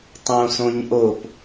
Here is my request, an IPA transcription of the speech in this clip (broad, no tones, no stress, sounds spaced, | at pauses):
tˤ õ s õ ɲ ʔ o p